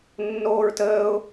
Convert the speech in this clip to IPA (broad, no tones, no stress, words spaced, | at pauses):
nːoːɹtəːʊ̯